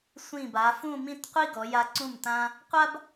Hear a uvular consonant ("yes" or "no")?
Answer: yes